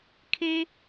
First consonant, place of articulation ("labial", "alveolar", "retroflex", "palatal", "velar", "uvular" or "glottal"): velar